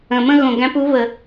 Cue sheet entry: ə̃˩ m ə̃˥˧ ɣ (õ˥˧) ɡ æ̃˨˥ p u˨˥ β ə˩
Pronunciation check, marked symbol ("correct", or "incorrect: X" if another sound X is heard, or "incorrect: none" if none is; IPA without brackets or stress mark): incorrect: õ˩